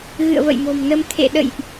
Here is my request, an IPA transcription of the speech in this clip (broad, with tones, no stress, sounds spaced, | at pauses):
ɣ ɨ̰˧˨ ə̯ v ə̰˧˨ j m o̤˨˩ m n ə˧ m t̪ʰ ḛ˧˨ ɗ ə̰˧˨ j ʔ